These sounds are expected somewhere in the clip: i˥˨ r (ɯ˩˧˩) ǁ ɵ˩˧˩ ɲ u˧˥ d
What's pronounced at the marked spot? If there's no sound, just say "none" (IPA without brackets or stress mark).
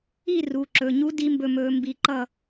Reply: u˩˧˩